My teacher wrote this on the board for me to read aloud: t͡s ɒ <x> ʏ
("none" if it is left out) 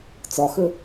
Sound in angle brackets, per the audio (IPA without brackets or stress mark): x